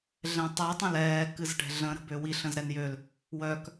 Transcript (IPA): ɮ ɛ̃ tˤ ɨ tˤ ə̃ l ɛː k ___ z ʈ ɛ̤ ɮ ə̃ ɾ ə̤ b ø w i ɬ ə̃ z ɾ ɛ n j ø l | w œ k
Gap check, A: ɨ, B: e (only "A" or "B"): A